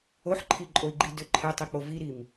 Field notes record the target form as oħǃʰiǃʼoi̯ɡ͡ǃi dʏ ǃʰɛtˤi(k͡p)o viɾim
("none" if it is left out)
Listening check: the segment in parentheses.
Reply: k͡p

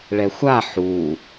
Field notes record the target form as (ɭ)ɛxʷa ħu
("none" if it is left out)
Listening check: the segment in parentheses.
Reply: ɭ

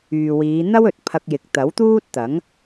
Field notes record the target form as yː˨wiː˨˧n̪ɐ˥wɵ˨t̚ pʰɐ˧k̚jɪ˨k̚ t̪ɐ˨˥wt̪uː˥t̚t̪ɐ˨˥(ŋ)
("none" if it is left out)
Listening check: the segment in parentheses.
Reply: ŋ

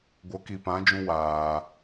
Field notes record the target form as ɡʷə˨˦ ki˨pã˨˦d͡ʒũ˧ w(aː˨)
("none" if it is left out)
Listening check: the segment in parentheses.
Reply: aː˨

